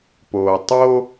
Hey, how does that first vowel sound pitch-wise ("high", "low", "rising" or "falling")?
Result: low